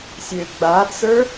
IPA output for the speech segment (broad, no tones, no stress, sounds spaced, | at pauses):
sʲ ø ɡ͡b a t͡s ə˞